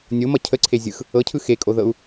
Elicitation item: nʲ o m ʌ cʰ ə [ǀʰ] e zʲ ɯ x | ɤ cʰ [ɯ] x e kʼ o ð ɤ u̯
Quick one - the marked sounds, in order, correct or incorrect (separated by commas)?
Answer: correct, correct